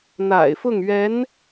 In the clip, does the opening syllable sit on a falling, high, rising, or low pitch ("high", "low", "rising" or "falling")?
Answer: low